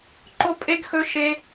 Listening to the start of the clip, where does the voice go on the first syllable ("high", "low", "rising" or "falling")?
high